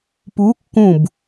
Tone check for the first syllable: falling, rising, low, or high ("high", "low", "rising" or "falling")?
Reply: rising